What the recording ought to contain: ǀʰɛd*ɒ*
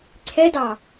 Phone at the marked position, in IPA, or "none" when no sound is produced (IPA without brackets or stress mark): ɑ